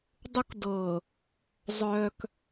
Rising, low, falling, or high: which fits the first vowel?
high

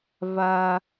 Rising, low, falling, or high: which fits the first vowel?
high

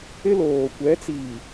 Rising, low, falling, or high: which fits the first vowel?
high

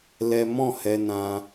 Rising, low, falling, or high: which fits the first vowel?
high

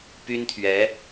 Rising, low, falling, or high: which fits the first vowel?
high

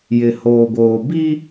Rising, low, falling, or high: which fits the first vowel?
low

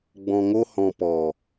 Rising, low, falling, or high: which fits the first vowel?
low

